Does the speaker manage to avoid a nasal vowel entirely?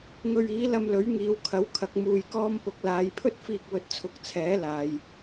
yes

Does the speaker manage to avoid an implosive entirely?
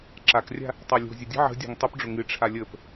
yes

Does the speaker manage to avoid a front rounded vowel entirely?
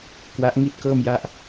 yes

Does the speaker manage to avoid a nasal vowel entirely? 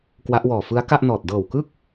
yes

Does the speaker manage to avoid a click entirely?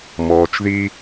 yes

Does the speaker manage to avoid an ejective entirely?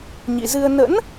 yes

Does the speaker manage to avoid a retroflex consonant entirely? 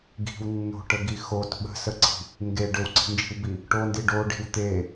no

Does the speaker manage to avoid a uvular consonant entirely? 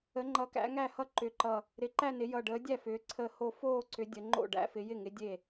yes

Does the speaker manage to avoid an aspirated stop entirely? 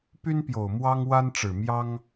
yes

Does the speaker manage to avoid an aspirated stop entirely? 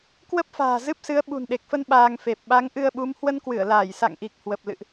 yes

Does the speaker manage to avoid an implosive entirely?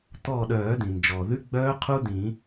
no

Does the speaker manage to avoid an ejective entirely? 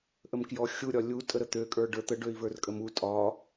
no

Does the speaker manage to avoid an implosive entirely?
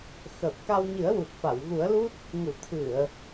yes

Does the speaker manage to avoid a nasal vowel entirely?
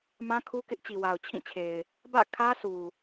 no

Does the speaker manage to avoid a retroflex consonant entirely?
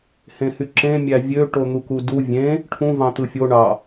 no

